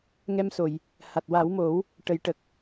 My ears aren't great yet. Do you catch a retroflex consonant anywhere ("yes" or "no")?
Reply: yes